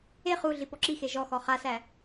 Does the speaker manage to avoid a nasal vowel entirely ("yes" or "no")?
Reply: yes